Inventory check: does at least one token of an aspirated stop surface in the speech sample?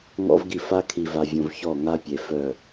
yes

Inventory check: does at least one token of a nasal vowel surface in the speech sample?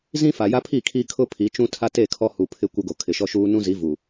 yes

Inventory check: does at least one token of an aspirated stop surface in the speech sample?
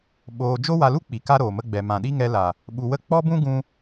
no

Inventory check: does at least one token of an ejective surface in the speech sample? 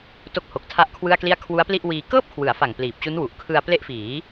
no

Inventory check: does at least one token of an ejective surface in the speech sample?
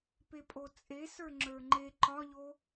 yes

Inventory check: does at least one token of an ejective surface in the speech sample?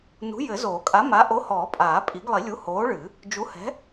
yes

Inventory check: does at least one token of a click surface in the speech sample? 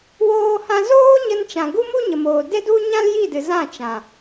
no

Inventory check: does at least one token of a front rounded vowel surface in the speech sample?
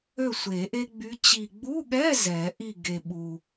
yes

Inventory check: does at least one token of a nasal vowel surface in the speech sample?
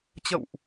no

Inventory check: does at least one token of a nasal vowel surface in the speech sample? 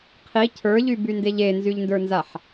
no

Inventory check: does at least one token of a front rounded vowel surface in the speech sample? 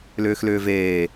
yes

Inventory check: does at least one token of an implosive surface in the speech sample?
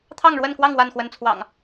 no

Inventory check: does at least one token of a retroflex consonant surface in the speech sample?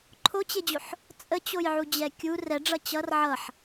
yes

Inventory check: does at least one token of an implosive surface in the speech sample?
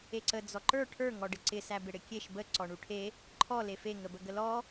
no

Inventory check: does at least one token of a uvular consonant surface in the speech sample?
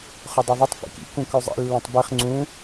yes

